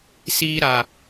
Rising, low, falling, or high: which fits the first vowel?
high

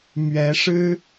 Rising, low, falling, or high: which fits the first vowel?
rising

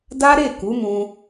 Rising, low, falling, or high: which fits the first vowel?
high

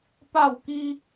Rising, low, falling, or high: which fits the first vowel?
falling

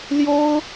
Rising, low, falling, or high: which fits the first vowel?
high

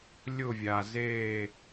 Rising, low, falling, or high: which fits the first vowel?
falling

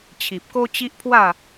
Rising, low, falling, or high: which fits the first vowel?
low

